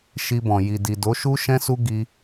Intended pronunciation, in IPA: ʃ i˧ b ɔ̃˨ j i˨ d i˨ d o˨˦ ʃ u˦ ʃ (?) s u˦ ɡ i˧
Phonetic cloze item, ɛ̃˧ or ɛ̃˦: ɛ̃˦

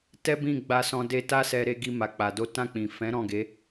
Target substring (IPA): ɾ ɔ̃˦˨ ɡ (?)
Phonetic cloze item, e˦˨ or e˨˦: e˨˦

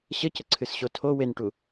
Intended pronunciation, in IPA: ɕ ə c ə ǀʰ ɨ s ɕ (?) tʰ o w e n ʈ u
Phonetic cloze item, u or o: o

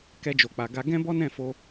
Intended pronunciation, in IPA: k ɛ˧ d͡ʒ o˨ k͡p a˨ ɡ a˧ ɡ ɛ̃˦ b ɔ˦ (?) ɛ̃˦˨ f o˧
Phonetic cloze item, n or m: n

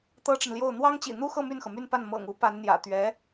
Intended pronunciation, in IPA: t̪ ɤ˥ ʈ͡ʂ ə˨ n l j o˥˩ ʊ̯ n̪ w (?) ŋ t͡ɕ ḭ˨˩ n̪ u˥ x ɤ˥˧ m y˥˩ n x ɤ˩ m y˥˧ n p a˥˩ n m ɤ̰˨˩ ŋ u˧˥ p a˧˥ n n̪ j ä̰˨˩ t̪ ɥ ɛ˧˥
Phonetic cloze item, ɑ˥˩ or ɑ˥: ɑ˥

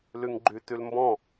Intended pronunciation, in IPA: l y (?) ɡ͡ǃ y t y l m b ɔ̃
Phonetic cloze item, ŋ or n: ŋ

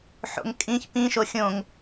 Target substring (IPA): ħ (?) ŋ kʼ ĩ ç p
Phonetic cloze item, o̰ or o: o̰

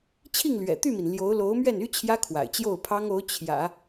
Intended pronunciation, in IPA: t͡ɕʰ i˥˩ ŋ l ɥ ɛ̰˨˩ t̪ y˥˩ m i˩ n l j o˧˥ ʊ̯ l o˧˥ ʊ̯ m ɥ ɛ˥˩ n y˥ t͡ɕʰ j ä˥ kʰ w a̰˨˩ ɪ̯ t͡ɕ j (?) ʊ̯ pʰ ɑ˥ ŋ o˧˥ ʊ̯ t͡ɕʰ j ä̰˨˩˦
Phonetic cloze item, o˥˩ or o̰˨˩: o˥˩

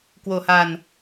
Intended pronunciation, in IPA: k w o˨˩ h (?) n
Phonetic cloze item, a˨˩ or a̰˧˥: a˨˩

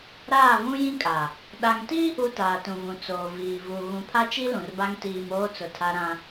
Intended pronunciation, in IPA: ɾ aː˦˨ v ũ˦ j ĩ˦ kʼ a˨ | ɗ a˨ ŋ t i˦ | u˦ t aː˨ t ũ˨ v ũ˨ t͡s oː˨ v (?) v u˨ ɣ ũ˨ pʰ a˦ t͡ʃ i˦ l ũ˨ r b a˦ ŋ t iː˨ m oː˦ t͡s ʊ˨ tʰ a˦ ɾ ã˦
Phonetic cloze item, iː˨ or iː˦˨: iː˨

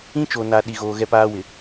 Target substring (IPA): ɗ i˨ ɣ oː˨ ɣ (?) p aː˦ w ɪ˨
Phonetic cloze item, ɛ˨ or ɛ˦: ɛ˦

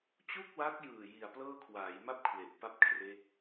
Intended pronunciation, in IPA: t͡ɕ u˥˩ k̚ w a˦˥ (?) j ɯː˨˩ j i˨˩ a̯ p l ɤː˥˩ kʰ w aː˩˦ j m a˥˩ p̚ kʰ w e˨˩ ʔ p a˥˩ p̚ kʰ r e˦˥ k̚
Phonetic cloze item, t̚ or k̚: k̚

